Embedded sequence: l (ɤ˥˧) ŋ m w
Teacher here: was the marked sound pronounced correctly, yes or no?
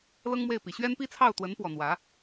no